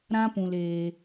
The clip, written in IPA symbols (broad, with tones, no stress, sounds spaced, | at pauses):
ɾ ã˦ p ũ˧ l eː˧